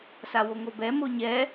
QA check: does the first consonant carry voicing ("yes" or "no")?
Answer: no